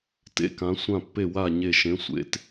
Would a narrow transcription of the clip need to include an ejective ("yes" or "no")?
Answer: no